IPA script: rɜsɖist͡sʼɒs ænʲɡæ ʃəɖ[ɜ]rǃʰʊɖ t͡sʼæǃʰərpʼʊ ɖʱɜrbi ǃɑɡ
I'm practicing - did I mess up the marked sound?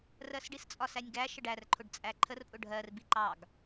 yes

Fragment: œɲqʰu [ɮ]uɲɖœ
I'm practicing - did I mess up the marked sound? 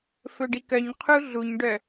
no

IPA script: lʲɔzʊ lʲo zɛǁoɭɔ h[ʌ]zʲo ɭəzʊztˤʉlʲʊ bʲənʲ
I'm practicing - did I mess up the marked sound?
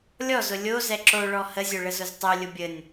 yes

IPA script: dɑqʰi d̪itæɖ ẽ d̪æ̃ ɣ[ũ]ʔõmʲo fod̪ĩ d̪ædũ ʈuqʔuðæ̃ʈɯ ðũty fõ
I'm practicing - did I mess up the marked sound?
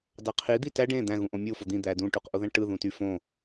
no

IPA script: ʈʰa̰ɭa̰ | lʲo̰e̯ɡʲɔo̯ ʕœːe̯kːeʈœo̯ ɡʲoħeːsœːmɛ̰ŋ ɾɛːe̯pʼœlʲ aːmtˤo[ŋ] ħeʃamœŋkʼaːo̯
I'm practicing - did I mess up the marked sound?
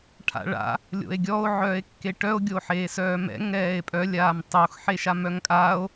yes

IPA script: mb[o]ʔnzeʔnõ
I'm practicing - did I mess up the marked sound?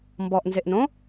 yes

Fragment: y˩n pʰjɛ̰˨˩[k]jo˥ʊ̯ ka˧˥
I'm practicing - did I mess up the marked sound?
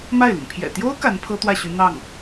yes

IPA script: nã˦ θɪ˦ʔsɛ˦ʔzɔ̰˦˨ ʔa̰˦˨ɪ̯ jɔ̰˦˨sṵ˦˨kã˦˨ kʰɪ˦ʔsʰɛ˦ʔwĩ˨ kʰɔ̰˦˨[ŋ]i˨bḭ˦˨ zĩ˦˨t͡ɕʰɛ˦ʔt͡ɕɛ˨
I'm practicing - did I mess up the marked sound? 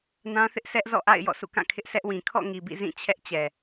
no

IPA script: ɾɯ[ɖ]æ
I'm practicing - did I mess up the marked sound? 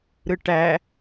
yes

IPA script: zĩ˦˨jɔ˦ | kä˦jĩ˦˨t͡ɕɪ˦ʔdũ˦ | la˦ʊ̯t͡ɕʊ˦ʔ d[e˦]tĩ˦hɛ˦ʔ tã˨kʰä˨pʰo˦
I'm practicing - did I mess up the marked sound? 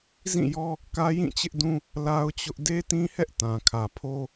no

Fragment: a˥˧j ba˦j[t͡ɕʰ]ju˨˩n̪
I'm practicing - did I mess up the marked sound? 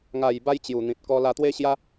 yes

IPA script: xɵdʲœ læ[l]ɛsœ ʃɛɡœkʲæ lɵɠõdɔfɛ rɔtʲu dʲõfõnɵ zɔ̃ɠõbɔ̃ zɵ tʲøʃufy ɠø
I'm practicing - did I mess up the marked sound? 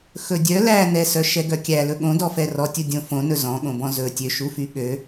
yes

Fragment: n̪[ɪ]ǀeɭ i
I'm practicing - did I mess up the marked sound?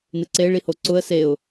no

